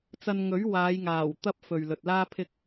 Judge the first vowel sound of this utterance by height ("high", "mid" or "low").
low